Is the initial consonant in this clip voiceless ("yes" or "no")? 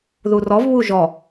no